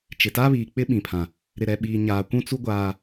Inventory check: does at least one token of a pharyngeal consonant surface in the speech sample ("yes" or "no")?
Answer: no